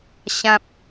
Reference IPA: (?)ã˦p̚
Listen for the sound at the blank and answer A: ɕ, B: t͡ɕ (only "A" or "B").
A